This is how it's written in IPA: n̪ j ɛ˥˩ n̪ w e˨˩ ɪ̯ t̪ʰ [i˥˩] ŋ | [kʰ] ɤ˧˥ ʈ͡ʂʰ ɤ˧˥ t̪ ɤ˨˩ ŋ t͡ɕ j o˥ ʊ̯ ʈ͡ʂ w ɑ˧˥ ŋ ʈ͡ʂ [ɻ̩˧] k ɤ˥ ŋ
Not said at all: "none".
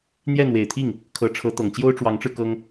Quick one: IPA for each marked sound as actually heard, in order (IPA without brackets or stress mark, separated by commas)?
i˥˩, kʰ, ɻ̩˧